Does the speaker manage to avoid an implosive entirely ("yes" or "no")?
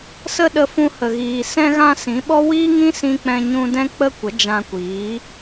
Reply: no